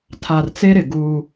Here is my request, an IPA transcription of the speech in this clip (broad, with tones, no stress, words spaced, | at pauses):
tʰa˨rt͡se˦ɾɪ˨ ɡuː˦